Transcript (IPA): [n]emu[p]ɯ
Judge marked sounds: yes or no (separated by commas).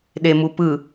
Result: no, yes